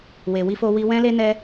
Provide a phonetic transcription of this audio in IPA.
w e˧ w i˦ f o˦ w i˦ w ɛ̃˦ l e˦ n ɛ˦

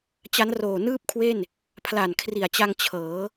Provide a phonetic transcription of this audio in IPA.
t͡ɕ a˦˥ n r oː˨˩ n ɯː˥˩ p̚ kʰ w e˥˩ n | pʰ l a˨˩ n kʰ r i˨˩ a̯ t͡ɕ a˧ ŋ t͡ɕʰ ɤː˩˦

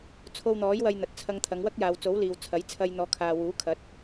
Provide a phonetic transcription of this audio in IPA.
t͡sʰ o˧ w n̪ ɔː˨˥ j w ɐ˧ j n̪ ɐ˨ t̚ t͡sʰ ɐ˧ ŋ t̪ʰ ɐ˨˧ ŋ w ɐ˥ k̚ j aː˨ w t͡s o˨˥ w l iː˨ w t͡sʰ ɐ˨˥ j t͡sʰ ɐ˧ j n̪ ɔː˨˧ kʰ aː˨ w uː˨˥ kʰ ɐ˨˥ t̚

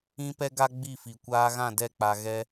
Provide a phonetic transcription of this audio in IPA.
ĩ˦ p ɛ˦ ɡ a˦ ɡ͡b i˦˨ f i˨ kʷ aː˦ ɣ ã˦˨ d ɛ˦˨ k͡p a˨ ɣ ɛ˦

